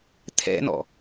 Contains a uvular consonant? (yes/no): no